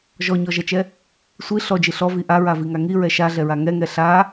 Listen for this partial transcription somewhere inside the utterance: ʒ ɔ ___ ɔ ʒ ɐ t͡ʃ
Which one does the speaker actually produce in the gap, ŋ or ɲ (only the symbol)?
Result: ɲ